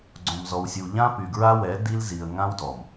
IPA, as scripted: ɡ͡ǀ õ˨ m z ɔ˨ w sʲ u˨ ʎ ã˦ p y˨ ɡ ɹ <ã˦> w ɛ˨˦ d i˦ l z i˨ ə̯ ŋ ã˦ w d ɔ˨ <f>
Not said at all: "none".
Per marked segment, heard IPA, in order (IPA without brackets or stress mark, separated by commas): a˦, m